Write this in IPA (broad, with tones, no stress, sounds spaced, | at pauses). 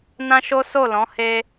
n ã˦ ʃ o˦ s o˦˨ l ɔ̃˨˦ h e˦